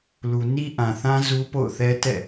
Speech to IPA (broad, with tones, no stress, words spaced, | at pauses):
lu˨ni˦ʔã˨θã˦ zu˦po̰˦˨ʊ̯θɛ˦tɛ̰˦˨